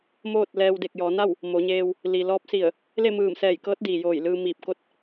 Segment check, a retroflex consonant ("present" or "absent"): absent